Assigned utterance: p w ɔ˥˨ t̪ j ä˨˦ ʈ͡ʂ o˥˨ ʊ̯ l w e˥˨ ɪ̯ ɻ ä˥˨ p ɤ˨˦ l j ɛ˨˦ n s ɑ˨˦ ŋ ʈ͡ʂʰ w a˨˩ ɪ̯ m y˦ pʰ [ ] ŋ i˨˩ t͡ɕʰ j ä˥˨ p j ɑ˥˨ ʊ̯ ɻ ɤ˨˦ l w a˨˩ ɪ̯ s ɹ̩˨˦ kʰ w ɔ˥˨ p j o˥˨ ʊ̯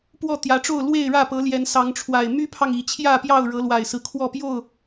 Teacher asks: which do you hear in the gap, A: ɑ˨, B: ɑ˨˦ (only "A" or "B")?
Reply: A